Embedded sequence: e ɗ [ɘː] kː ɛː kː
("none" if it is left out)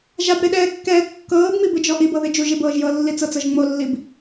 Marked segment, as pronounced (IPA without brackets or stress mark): ɛː